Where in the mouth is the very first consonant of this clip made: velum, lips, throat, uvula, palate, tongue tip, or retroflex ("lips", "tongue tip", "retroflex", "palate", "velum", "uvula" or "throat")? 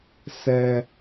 tongue tip